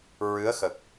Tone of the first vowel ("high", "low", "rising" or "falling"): rising